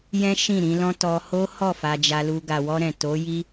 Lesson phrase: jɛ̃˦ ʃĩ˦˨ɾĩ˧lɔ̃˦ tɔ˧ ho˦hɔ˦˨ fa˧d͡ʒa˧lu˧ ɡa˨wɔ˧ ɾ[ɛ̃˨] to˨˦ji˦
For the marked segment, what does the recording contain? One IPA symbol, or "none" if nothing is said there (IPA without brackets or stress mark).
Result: ɛ̃˨